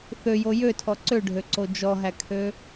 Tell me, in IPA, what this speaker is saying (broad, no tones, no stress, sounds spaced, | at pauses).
θ ø j o j ø tʰ ɔ ǀ ø ɖʱ ø ǀ o d͡ʒ ɔ ɦ æ kʰ ø